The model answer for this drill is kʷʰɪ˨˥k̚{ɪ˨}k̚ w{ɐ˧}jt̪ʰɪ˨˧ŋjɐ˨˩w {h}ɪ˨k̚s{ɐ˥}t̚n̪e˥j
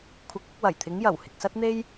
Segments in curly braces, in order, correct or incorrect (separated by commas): incorrect, incorrect, correct, correct